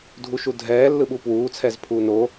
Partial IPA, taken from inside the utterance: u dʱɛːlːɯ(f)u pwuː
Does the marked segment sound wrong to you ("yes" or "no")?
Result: yes